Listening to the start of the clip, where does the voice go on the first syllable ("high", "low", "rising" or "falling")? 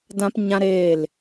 high